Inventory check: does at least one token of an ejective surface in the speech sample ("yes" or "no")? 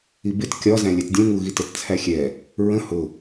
no